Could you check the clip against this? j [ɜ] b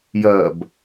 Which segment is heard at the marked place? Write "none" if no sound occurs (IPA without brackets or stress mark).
ɜ